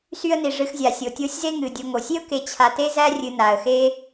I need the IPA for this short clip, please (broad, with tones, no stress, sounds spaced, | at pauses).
s y˦ ə̯ n i˩ ʐ ɨ˨ x zʲ a˩ sʲ o˩ tʲ o˦ sʲ z e˥ ŋ ɨ˩ dʲ o˨ ŋ o˩ sʲ e˥ ʊ̯ k e˨ t͡ɕʰ a˨ t e˥ z æ˥ rʲ ɨ˨ n a˩ ə̯ x e˥